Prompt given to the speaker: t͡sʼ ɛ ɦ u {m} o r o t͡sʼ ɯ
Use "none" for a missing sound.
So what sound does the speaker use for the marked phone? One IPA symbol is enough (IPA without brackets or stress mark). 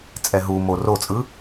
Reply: m